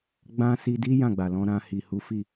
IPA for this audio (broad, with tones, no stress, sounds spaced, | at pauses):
ɡ͡b ã˦ s i˧ d i˦ j ã˦˨ ɡ͡b a˨ l ɔ̃˧ ɾ ã˧ h i˨ h u˨˦ f i˦˨